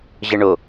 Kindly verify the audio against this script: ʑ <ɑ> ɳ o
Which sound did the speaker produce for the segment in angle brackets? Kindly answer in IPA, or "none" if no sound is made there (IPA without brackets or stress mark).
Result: ə